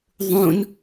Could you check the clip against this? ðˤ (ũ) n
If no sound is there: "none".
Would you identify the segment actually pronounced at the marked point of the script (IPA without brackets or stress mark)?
ũ